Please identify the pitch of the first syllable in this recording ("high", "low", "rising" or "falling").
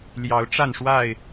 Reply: rising